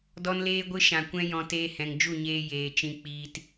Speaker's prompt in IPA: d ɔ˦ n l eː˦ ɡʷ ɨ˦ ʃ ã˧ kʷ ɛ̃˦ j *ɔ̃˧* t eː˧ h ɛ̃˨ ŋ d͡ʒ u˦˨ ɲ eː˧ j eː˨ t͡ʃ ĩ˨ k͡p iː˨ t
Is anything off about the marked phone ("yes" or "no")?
no